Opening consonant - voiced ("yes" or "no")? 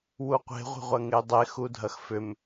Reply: yes